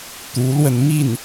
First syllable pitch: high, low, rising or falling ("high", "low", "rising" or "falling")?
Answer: rising